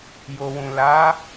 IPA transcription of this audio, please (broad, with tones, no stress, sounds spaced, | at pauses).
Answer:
j o˨ w ũ˨ l a˨˦